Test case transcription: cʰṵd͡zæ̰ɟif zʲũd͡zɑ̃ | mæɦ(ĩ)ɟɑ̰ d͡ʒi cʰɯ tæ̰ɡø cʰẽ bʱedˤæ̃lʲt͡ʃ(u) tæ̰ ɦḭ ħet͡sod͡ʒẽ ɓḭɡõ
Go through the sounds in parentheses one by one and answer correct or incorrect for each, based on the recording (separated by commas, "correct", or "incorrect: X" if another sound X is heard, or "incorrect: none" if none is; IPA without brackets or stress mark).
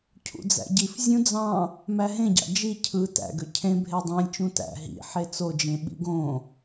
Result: incorrect: ẽ, incorrect: ũ